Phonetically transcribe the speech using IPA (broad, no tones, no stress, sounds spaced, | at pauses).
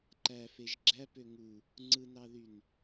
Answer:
ǃ æ f e ʒ ɡ͡ǁ æ p ø ŋ u | ŋ͡ǀ ɯ n ɑ ð y n